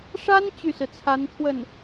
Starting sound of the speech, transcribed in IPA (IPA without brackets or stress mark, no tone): ʂ